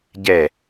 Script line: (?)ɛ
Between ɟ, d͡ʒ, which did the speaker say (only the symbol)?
ɟ